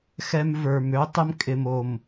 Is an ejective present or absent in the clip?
present